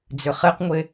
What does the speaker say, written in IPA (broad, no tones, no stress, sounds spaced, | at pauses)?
d͡z ʏ χ e q ŋʷ e